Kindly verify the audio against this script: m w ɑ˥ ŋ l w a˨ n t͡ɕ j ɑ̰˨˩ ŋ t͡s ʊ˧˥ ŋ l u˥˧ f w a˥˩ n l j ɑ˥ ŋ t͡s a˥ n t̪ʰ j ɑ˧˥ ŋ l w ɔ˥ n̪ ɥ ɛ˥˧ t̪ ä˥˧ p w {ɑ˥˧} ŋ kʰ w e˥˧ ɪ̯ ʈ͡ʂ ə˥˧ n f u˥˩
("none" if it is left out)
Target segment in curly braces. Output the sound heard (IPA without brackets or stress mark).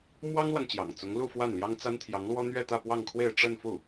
ɑ˥˧